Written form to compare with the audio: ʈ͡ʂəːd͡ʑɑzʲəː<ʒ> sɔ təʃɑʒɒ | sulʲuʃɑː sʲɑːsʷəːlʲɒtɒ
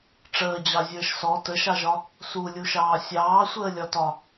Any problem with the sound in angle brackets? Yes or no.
yes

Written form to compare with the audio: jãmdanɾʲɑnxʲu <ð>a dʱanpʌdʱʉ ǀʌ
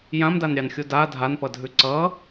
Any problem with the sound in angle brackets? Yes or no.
yes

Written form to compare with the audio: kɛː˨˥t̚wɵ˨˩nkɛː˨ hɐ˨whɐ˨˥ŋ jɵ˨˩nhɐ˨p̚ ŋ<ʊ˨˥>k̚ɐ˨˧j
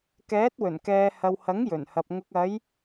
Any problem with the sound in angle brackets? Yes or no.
yes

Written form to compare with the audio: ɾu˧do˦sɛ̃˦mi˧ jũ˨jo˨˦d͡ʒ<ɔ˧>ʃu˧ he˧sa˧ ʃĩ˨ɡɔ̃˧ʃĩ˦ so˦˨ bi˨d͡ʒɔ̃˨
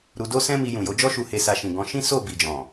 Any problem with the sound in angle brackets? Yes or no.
yes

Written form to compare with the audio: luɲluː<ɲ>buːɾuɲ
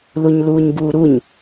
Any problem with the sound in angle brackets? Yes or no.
no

